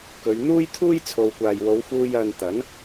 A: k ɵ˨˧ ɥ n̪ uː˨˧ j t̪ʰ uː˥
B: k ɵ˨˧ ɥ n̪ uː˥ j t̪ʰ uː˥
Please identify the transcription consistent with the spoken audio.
B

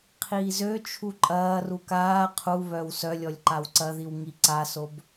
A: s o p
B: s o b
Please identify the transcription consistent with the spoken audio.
B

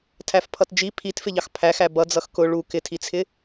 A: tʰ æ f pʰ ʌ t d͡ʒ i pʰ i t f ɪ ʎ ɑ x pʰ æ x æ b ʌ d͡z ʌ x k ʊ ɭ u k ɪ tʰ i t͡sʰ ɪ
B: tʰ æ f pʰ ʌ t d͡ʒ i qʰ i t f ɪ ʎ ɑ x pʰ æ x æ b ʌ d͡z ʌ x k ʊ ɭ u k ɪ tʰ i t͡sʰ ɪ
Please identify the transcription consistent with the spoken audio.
A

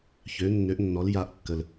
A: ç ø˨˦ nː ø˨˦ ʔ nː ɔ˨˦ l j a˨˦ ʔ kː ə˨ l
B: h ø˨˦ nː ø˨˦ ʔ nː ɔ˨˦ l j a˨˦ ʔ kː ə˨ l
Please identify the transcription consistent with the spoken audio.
A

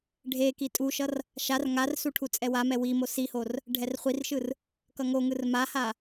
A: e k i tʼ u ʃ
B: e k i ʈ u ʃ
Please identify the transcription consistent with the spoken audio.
A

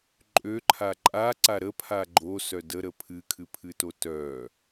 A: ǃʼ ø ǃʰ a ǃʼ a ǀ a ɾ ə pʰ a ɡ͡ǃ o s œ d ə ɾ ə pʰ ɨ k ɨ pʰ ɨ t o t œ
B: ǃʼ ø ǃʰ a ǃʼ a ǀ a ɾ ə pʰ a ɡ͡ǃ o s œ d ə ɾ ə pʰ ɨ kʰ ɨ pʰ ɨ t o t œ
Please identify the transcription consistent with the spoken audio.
B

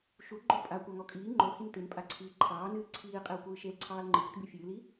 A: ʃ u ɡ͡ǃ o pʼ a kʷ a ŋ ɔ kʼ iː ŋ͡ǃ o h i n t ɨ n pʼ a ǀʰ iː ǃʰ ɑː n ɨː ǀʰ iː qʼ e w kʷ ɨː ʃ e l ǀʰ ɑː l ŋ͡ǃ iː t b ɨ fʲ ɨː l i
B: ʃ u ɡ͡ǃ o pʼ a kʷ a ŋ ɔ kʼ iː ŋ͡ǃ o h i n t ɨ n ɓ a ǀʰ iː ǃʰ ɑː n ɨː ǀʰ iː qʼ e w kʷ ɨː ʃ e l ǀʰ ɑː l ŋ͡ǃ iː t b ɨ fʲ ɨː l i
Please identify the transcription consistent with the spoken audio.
A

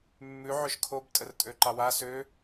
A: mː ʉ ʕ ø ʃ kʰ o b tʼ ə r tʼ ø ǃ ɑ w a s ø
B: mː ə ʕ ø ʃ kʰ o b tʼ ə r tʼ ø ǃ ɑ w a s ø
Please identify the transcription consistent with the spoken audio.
A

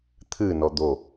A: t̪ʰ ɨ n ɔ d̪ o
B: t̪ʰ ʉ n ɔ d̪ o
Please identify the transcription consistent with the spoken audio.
A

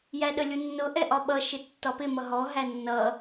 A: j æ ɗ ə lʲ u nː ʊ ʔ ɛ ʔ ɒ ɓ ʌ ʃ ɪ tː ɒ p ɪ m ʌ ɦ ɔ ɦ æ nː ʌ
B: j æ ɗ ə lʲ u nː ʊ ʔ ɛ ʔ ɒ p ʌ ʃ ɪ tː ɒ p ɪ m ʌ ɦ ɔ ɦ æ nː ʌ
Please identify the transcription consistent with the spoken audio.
A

